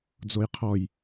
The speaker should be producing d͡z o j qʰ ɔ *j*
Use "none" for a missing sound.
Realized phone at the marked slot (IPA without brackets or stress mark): j